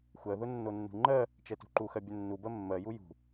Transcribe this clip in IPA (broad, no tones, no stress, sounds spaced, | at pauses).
xʷ ɜ ð ʊ nː o nː ṳ ŋ͡ǃ ɜ | t͡ʃ ɛ t ṳ ǃ u x ɜ bʲ ʊ nː u b ɜ mː ɜ j u j ṳ